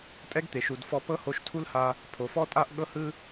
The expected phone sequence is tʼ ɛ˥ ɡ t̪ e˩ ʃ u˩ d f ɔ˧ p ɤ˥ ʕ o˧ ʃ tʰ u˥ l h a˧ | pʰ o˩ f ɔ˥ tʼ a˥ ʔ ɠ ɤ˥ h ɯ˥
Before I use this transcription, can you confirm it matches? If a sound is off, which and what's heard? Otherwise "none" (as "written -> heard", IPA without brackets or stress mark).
ʕ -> h